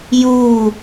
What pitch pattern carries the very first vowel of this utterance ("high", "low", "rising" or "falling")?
falling